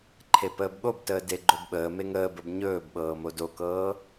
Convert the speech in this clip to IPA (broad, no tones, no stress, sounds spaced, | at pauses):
ǃʰ e p əː b ɠ o b t əː d e ɡ͡ǃ o b ɓ əː m e ŋ əː b ə b ɲ ɵː b ɓ ɤː m o d o k ɤː